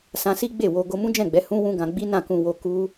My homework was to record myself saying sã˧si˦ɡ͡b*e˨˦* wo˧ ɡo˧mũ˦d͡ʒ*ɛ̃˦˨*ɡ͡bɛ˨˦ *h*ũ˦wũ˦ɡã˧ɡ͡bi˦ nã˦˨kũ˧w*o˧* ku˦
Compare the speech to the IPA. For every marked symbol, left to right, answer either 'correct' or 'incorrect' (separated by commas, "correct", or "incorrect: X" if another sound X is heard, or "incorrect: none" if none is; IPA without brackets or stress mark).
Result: incorrect: e˦˨, correct, correct, correct